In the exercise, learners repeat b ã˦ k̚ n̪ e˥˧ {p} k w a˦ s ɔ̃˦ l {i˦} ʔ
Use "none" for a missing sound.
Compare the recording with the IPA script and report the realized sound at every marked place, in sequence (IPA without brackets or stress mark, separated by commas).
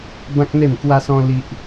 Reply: m, i˦